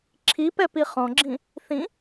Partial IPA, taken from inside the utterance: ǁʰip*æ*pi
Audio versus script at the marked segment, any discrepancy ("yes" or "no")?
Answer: yes